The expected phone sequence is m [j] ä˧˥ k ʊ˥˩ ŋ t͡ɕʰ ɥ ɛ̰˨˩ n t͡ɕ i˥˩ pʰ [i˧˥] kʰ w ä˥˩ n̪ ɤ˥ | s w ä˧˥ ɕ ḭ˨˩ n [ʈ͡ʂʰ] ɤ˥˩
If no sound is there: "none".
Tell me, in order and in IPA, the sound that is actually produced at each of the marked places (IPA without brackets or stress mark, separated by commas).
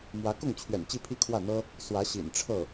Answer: w, i˥, ʈ͡ʂʰ